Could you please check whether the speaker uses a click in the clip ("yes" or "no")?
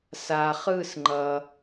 yes